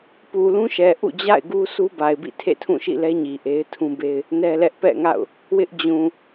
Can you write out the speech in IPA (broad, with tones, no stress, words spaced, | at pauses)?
pu˨lũ˦ʃɛ˨ ʔṵ˦˨d͡ʑa̰˦˨ɪ̯ɡu˦ su˦ba˨ɪ̯bḭ˦˨ tʰḛ˦˨tʰũ˦˨ʃḭ˦˨lɛ˦ ɲi˨ʔe˦ɪ̯tʰũ˦be˦ɪ̯ | nɛ˦lɛ˦ʔ pɛ̰˦˨ŋa̰˦˨ʊ̯ | wɪ˦ʔd͡ʑũ˨